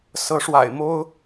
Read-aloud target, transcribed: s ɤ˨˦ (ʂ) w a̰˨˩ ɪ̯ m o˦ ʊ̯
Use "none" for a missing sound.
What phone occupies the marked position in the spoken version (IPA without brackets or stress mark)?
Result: ʂ